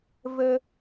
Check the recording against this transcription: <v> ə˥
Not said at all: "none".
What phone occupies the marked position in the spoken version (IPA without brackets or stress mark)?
v